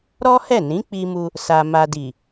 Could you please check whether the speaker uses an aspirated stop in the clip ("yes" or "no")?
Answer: no